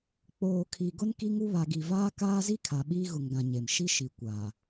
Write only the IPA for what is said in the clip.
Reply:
k͡p oː˨ kʰ i˨ ɡ ʊ˦ n k i˦ ŋ u˦ β a˨ ɡ i˨ v aː˦ k aː˦ z i˦ kʰ a˨ ɓ iː˦ ɣ ʊ˨ ŋ ɡ ã˨ ɲ e˨ m ʃ i˦ ʃ i˨ kʷ aː˨

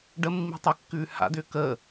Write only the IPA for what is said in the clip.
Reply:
ɖ ə mː i̤ tˤ ɨ kː ʉː h a̰ d ʏː k əː

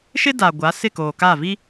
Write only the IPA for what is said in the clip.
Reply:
ʃ ɪ˦ d a˨ ɡʷ a˨˦ s ɪ˦˨ k oː˨ k a˦˨ v i˦

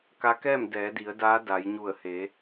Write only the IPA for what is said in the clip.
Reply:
k a˧˥ k ɛː˥˨ m d ɛː˩˧ d i˩˧ ə̯ d aː˧˥ d a˩˧ j ɲ u˧˩ ə̯ h e˩˧

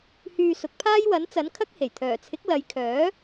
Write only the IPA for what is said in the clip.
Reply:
h yː˧ s ʊ˨˥ k̚ pʰ aː˥ j w ɐ˨˥ n t͡s ɐ˨˥ n kʰ ɐ˥ k̚ h e˨˩ j t̪ʰ œː˨˩ t͡sʰ ɪ˨˥ k̚ l ɐ˨˧ j kʰ œː˨˥

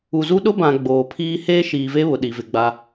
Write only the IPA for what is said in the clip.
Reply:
u˨ z u˦ ɗ ʊ˦ b ã˨ ɡ͡b oː˨ pʰ iː˦ h eː˦ ʃ iː˨ v e˦ β ʊ˨ ɗ i˨ v ɪ˨ ɡ͡b a˦

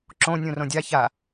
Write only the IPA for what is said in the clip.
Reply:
ǁ õ nʲ ũ r õ dʲ a ç a

